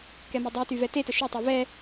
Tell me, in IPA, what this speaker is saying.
k ɛ m ɤ dˤ y t y v ɛ t e t ə ʃ e tˤ ɤ v ɛ

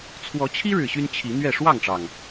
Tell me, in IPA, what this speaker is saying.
t͡sʰ w ɔ˨˦ t͡ɕʰ i˦ ɻ ɻ̩˨˩ ɕ y˦ n t͡ɕʰ i˨˦ n̪ ɥ ɛ˥˨ ʂ w ɑ˥˨ ŋ ʈ͡ʂ ɑ˩ ŋ

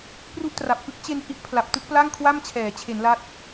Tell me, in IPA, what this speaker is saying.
p r u˥˩ ʔ t r a˨˩ p̚ k ɯ˥˩ k̚ t͡ɕ e˧ n h i˦˥ ʔ pʰ l a˨˩ p̚ t ɯ˥˩ k̚ p l a˥˩ ŋ kʰ w a˥˩ m t͡ɕʰ ɛː˩˦ t͡ɕʰ e˩˦ n l a˦˥ t̚

